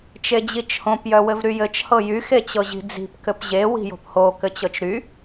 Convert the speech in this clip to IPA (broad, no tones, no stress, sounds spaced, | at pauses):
t͡ʃ e d͡ʑ i t͡ʃ h õ p j œ w ɘ v ɾ y j ɘ t͡ʃ h ɤ j y x e t͡ɕ ɤ ʑ i̤ d͡z i̤ p k ɘ p ʑ e w i̤ j o̤ p h o k ɘ t͡ɕ ɤ t͡ʃ ɾ y